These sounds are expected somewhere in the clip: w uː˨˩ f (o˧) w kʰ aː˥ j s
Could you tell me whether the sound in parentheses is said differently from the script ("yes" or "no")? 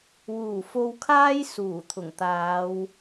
no